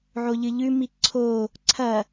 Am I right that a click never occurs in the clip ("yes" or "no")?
no